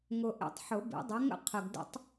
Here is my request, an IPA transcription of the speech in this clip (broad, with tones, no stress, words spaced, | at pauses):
ŋʊ˨ ʔḛ˨tˤħʊ˨˩˦ bḭ˨˩˦dˤe˨˦ŋə̰˥˨ qʰə˨ɡdə̰˦tˤ